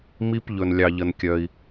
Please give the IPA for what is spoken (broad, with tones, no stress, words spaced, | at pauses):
mi˧pʎɵ˩nlʲɑ˩ ʎə˩nkʲœ˩i̯